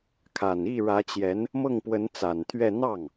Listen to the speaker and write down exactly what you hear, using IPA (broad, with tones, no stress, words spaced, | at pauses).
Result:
kʰa˨˩ni˥˩ɻä˧˥t͡ɕjɛ˧˥n | mɤ˥˩ŋpwə˧˥nt͡sa˨˩nt̪ʰɥɛ˥˧ n̪ɑ˥˩ŋ